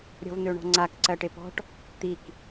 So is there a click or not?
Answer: yes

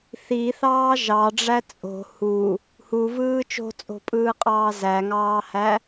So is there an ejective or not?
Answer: yes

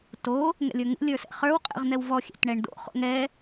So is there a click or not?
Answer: no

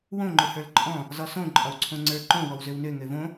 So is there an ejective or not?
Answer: yes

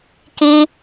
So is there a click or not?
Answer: no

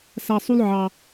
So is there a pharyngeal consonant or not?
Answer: yes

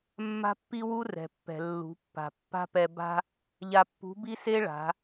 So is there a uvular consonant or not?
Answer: no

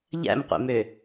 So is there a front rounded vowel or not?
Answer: yes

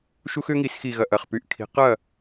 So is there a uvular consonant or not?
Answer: yes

